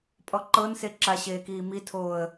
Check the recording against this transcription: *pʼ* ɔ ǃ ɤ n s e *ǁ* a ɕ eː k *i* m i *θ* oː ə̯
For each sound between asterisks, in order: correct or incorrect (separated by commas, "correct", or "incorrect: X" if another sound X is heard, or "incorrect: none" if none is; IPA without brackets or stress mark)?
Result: correct, correct, incorrect: iː, incorrect: tʰ